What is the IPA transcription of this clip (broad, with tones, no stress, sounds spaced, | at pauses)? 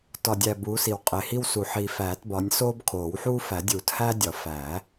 t ɒ˨ dʲ æ˨ b uː˨˦ s i˨ w qʼ e˨ h i˦ w s u˨ ħ i˨ f æː˨˩˦ t b ɒ˨˦ nʲ s oː˦ b kʰ oː˨˩˦ w ħ uː˦ f æ˨˩˦ dʲ uː˨˩˦ t h æː˦ dʲ ɒ˨˩˦ f æ˨˩˦